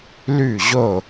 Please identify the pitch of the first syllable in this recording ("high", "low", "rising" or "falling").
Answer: falling